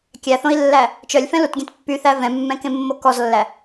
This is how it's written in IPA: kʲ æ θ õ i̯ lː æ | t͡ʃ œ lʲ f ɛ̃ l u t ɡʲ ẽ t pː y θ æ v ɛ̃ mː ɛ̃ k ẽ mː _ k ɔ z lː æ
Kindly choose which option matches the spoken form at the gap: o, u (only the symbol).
o